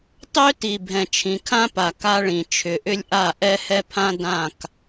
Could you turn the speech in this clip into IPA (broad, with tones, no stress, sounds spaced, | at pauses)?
tˤ ø˦ t i˨ bʱ ɛ̃˨ t͡ʃʰ ĩ˨ kʰ ã˦ p a˨ k a˦ ɭ ĩ˨ t͡ʃʰ ʏ˨ ʔ ʏ˦ lʲ ʔ a˦˨ ʔ ɛ˦ h ɛ˦ pʰ ã˦ d ã˦˨ k